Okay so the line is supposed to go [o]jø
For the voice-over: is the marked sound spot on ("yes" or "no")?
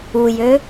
no